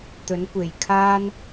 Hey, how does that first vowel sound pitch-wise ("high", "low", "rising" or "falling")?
rising